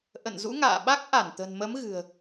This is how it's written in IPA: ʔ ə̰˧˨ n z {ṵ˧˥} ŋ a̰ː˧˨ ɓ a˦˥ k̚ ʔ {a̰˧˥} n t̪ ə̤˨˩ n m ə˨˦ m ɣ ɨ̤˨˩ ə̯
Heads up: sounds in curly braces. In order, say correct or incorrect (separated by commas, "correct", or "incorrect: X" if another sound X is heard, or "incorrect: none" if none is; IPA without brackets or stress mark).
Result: correct, incorrect: a˧˩